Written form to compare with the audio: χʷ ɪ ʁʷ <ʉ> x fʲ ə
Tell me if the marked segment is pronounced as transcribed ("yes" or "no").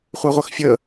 no